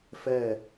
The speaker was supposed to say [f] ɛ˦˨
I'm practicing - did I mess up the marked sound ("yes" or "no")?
no